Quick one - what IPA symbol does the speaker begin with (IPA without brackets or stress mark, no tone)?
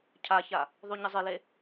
cʰ